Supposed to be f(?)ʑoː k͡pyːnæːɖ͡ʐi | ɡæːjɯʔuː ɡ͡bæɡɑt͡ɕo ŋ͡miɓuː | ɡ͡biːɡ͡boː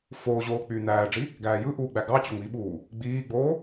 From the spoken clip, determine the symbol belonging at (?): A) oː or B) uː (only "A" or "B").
A